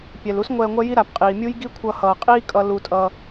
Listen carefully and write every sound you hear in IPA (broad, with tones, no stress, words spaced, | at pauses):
pʲɛ˩lu˥s ŋʷɛː˧ŋʷɛ˥ji˥ ɾa˩pqʼiː˩mʲu˥jɡi˥ kʷʰʌ˧hʌː˩qʼiː˥kʼʌ˧ lu˧tʼʌ˧